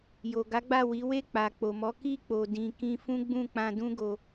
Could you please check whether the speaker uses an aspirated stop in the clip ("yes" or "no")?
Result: no